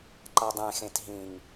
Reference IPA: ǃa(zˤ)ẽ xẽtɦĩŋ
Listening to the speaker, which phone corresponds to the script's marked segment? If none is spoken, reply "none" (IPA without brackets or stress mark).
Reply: dˤ